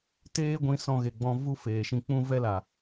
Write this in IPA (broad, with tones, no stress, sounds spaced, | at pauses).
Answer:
t eː˦ ɡʷ ĩ˧ s ɔ̃˧ ɣ e˨ ɡ͡b ɔ̃˧ v u˦ f eː˨ ʃ ĩ˧ k͡p ũ˦ v ɛ˦ l a˨